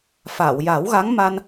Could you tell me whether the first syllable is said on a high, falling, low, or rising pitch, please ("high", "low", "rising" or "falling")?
low